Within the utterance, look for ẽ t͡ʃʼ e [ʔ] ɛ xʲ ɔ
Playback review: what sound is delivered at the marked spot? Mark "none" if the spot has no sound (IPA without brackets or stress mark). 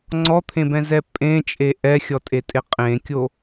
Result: ʔ